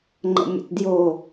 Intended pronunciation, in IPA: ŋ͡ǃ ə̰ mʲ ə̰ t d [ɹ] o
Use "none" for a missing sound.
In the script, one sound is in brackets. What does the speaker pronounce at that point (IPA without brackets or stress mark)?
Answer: j